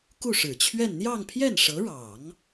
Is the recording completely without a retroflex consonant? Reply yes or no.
no